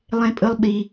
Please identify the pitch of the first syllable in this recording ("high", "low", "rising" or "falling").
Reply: high